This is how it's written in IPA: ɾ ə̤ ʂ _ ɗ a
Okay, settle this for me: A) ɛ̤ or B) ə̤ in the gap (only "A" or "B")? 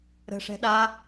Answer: A